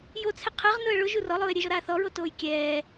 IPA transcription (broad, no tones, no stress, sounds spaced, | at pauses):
j o t͡sʰ ɪ qʰ ɛ ʁ n ʊ ə̯ ɭ ʊ ʒ u r ɔ lˠ ʊː ɪ̯ ɾʲ e ʒ ɔ ɾ aː θ ɔ ɹ o t oː j kʲ ɛː